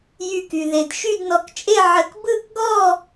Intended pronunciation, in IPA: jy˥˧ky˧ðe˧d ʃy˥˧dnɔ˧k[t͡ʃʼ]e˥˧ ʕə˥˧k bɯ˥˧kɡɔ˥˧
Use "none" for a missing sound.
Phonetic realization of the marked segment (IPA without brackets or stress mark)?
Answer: t͡ʃʼ